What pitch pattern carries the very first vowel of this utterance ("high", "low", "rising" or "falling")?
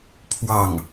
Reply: falling